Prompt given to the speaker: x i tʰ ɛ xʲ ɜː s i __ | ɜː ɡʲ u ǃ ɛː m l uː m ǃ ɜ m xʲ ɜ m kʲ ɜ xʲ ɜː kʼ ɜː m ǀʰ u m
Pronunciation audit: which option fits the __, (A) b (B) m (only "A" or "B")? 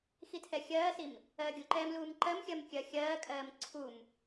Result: B